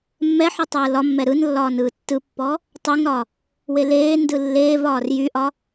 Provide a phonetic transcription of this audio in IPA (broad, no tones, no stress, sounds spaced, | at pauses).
mː ɛ ħ ɯ tˤ ɯː l ɒ mː ɛ ɾ ɯ n lː ɒː n ɯː tː ɯ pː ɔ | tˤ y ŋ ɾ ɒ | w e l eː n d ɯ lː eː v ɒː r j y ʔ ɒ